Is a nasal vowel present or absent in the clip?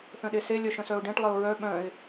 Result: present